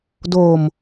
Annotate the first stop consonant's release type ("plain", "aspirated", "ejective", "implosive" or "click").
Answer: plain